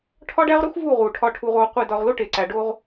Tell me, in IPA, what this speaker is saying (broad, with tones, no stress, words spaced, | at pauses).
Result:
ʈʰɒ˦ɖæ˦ʁɾu˦xvu˦˨ ʁu˨ ʈʰɒ˨ʈʰu˨ʁoː˨ qʷi˨ dɒ˨ʁlo˦ ʈe˨ǀæ˨ɖo˦ʁ